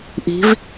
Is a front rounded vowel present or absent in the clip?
absent